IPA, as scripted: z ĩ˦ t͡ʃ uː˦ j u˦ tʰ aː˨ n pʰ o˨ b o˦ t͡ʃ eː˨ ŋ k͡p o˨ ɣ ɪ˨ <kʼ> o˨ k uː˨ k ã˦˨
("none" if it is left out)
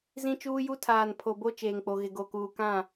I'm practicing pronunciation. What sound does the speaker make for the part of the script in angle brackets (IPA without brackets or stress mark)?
ɡ